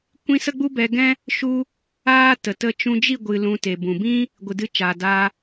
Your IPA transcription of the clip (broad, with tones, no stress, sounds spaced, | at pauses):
kʷ ĩ˦ s ə˦ ɡ͡b u˦ b ɛ˧ ɡ ɛ̃˦ | ʃ u˦ | aː˦ t ə˨ t ə˧ t͡ʃ ũ˧ d͡ʒ i˦˨ ɡʷ ɨ˨ l ũ˧ t e˨ b ũ˨ b ĩ˦ | ɡʷ ɨ˨ d ɨ˧ t͡ʃ aː˨ d aː˧